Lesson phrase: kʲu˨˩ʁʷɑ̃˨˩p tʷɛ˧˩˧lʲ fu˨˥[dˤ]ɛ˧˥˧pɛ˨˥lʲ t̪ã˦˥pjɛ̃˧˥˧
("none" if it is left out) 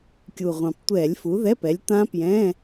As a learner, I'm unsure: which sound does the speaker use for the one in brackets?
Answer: ð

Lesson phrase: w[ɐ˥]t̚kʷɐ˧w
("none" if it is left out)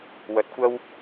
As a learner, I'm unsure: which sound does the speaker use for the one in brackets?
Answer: ɐ˨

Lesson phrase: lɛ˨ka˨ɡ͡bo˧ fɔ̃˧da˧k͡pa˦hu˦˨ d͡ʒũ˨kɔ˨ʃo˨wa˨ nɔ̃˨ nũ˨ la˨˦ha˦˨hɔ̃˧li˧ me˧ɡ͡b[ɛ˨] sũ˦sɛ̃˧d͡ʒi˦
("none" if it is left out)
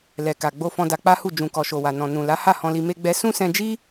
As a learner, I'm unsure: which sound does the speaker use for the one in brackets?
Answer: ɛ˧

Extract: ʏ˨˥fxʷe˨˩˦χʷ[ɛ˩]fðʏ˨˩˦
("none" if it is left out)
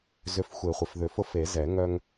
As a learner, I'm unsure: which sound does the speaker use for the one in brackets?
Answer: ɪ˩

